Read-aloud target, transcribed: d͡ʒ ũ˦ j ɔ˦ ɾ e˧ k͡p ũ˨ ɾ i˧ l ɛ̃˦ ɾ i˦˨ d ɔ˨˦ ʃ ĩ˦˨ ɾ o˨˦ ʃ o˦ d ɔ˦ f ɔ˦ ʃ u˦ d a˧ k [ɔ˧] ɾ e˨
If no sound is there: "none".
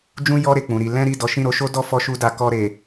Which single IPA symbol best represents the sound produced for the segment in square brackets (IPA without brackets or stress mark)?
ɔ˧